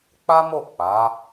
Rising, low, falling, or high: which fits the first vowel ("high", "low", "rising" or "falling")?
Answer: high